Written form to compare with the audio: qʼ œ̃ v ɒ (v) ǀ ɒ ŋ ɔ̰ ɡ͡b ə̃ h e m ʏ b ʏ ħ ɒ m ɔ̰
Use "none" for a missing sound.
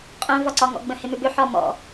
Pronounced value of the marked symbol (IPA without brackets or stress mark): none